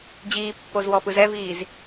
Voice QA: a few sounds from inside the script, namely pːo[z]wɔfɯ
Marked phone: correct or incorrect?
correct